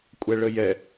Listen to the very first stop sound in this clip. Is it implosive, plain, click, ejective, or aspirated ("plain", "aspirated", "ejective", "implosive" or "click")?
ejective